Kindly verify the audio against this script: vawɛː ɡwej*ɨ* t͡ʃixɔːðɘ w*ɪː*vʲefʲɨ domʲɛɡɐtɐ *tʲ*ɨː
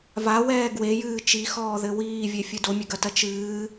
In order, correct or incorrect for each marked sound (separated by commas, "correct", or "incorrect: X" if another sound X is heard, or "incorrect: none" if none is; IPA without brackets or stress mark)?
incorrect: ɨː, incorrect: iː, incorrect: t͡ʃ